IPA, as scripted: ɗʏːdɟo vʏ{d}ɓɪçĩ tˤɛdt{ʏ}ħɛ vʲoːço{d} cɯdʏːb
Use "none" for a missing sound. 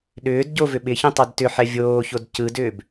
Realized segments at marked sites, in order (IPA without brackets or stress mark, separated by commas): none, ʏ, d